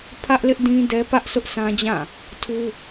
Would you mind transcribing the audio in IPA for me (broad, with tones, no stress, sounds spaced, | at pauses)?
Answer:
pʰ ä˦ ʔ l ɪ˦ ʔ d ĩ˦ d ɛ˦ p ä˦ ʔ sʰ ʊ˦ ʔ s ã˦ d͡ʑ ã˦˨ | tʰ u˦